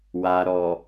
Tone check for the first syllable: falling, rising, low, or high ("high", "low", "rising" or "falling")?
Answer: low